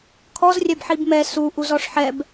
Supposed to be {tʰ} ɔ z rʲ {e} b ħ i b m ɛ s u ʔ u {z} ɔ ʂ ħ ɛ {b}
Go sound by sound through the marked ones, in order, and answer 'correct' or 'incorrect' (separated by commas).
incorrect, incorrect, correct, correct